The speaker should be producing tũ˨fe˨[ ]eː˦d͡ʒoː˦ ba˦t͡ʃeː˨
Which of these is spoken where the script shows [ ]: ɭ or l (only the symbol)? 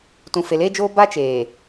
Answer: l